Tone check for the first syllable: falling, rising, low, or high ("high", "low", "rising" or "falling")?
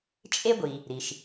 high